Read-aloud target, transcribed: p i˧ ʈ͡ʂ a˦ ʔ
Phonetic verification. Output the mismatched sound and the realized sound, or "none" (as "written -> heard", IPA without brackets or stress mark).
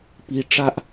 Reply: none